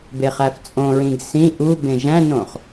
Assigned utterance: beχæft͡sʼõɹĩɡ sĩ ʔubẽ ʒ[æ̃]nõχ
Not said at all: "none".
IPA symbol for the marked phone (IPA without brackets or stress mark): æ̃